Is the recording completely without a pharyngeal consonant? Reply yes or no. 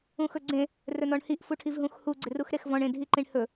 yes